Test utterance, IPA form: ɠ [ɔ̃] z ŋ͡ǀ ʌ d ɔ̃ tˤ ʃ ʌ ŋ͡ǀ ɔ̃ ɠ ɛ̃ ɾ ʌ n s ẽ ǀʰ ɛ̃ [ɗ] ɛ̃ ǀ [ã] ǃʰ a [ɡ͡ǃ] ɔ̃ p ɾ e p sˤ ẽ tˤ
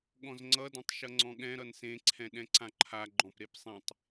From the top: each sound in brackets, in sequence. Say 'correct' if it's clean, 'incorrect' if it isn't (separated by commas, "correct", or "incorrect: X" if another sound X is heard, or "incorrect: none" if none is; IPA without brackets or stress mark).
correct, correct, correct, correct